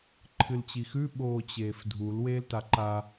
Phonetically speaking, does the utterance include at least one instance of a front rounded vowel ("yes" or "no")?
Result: no